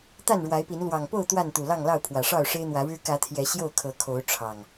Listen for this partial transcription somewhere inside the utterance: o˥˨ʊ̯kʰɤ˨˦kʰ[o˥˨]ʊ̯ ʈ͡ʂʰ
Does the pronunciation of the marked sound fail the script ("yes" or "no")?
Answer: yes